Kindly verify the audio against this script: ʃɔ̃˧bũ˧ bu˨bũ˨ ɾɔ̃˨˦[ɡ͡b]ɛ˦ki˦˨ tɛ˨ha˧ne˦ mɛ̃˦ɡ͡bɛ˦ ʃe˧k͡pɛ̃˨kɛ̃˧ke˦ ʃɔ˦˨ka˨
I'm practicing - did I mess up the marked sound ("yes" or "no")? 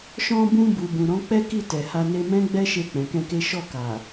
yes